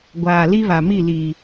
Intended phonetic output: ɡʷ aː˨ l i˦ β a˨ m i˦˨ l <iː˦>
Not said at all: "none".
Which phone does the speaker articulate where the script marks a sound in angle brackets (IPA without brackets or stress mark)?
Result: iː˨